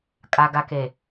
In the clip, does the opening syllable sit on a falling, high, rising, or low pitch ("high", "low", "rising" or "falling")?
low